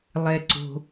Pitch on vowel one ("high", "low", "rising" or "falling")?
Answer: low